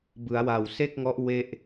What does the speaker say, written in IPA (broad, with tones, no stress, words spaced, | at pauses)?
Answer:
bɯ˩˦a̯wa˨˩wse˥˩k̚ŋɔ˦˥ʔ we˥˩ʔ